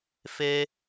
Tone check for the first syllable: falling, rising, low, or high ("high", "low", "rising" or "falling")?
high